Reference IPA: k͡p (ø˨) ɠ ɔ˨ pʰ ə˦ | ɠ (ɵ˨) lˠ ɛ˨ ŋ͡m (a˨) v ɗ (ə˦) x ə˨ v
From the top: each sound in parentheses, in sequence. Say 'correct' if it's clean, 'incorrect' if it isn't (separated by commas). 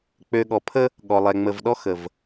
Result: correct, incorrect, incorrect, incorrect